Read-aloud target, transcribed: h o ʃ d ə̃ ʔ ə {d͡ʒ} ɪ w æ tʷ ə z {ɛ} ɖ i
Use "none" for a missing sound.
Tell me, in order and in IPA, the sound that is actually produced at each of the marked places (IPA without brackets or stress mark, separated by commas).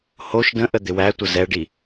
d̪, ɛ